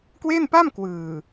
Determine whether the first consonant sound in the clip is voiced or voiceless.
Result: voiceless